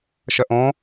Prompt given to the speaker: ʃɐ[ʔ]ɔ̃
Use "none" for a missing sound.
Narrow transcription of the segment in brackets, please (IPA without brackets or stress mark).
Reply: ʔ